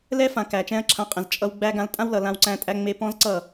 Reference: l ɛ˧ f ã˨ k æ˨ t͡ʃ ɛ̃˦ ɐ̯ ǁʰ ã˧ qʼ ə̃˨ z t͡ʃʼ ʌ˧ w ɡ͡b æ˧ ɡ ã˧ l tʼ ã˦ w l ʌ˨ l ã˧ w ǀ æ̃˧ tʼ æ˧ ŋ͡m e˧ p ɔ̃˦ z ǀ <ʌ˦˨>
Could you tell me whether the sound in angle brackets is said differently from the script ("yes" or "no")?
no